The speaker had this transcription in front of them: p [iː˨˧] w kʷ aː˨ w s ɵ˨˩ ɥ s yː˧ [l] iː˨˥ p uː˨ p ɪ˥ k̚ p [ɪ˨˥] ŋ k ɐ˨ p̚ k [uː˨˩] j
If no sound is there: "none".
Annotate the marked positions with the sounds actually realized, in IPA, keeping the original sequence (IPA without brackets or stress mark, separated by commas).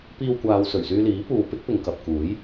iː˧, l, ɪ˨, uː˨˥